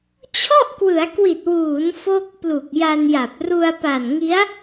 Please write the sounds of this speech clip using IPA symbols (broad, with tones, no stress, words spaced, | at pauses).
t͡ɕʰɔ˥˩ʔkwɯ˩˦a̯kwi˨˩t̚wuː˩˦n fo˥˩k̚ plu˨˩k̚ja˧nja˨˩p̚ ru˧a̯pa˨˩nŋi˦˥a̯